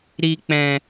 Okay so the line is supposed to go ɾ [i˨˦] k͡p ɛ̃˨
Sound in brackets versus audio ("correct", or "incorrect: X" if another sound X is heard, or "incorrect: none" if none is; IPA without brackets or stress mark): incorrect: i˨